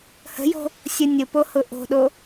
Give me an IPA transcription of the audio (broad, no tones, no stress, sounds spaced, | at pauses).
h ə̤ j o̤ | sʲ ʊ nʲ ʊ p o h ʊ ʔ o̤ ɗ o